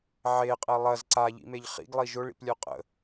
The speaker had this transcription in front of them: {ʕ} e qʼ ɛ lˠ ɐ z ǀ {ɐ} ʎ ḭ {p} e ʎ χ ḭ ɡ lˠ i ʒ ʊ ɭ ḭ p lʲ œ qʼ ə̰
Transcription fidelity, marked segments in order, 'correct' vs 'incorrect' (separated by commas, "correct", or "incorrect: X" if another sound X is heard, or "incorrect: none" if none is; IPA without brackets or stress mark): correct, incorrect: a, incorrect: m